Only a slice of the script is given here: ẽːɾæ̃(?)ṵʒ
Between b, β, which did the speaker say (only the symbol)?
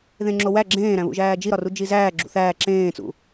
β